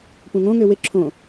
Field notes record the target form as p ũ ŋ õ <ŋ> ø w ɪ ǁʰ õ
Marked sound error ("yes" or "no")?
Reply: no